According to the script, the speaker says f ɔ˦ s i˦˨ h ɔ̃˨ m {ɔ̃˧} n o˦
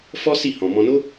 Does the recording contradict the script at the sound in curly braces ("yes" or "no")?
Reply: no